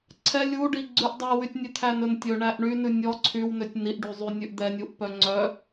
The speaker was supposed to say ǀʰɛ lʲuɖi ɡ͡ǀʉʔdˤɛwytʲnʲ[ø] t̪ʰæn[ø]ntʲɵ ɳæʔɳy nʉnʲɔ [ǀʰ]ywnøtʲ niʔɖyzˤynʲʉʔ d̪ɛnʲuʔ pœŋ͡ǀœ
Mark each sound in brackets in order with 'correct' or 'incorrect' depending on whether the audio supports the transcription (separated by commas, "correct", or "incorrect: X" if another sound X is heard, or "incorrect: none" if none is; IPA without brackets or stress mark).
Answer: incorrect: ʉ, incorrect: ɵ, correct